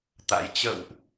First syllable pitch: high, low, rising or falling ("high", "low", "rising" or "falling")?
rising